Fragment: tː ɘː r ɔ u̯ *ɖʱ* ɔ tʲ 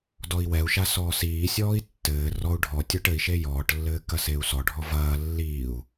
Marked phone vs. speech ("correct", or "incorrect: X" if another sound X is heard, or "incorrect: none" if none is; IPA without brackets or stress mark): correct